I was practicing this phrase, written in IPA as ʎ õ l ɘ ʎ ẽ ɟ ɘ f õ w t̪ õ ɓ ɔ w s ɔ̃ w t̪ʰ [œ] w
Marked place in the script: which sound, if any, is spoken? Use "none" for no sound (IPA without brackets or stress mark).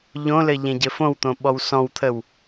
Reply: ə